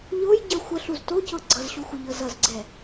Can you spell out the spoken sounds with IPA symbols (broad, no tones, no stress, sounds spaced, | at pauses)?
ʎ o j ɟ ə xʷ ə ɬ u z t o c ɤ ɡ͡ǀ ʌ z ɕ u xʷ ə ʎ ɤ z ʌ z ɡ͡ǀ ɛ